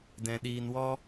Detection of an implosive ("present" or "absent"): present